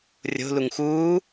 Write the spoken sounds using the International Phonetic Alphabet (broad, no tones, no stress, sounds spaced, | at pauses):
rʲ o̤ l u ŋ x uː